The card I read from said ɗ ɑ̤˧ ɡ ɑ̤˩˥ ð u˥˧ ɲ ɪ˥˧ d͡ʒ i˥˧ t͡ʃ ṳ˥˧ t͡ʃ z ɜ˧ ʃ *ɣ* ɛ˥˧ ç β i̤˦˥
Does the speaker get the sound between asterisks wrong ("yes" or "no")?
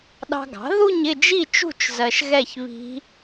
no